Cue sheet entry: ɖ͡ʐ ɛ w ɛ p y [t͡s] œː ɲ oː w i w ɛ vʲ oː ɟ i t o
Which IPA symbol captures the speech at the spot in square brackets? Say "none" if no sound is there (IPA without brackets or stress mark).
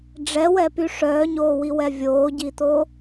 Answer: ʂ